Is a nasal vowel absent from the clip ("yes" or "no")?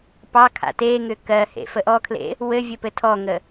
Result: yes